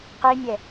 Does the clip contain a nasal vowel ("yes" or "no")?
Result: no